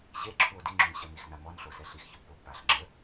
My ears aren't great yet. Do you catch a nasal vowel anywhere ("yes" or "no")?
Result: no